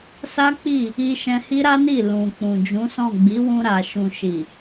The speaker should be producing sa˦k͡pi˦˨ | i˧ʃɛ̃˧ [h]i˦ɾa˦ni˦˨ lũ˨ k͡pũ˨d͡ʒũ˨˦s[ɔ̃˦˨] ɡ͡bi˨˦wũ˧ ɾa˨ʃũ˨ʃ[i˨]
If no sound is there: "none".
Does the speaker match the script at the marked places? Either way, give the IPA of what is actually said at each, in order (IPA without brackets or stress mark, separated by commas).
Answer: h, ɔ̃˦˨, i˨